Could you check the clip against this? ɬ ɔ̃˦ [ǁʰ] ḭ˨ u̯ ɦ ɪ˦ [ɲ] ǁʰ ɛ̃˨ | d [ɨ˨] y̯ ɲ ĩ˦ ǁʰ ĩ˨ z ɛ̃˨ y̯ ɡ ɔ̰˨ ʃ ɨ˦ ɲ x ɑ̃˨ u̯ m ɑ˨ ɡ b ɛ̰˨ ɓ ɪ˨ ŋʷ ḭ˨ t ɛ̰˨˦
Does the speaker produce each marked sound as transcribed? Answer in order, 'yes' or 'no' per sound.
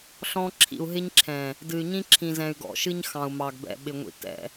yes, yes, yes

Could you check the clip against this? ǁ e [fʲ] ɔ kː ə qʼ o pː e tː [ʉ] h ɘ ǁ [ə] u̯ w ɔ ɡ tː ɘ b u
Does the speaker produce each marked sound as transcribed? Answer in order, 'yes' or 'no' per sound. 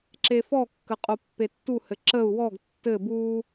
no, no, yes

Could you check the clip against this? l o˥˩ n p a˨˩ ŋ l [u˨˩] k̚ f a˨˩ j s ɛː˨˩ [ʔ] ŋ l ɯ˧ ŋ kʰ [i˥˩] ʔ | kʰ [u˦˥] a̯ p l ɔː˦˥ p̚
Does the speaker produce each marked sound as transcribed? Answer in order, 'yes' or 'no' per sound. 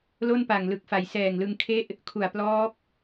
no, no, no, no

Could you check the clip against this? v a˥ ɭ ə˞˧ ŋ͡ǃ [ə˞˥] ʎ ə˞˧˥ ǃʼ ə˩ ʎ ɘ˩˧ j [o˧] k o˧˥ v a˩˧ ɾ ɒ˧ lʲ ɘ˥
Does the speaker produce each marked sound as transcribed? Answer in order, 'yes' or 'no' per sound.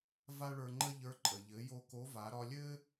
no, yes

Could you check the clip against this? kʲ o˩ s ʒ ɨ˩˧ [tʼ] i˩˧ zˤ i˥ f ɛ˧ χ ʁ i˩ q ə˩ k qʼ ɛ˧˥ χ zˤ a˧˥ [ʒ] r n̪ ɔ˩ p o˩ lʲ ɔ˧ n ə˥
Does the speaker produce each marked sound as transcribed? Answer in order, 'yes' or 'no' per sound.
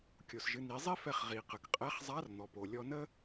no, no

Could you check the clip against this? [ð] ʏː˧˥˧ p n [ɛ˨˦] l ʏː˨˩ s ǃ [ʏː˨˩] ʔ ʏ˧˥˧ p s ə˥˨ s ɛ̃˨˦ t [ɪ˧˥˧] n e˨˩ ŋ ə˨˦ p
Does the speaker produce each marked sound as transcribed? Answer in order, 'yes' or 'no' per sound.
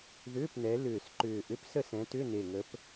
yes, yes, yes, no

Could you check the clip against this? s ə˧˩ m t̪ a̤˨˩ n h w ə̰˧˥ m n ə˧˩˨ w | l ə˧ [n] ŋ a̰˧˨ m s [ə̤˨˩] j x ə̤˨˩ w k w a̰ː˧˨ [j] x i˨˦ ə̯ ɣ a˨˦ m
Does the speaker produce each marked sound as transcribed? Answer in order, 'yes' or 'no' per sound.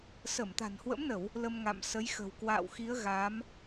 no, no, no

